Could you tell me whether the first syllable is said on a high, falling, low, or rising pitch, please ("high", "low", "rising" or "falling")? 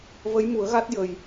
rising